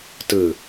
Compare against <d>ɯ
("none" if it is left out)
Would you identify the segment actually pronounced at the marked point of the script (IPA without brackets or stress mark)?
t